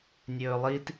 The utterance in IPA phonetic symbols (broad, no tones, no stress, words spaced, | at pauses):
nʲɵːlˠit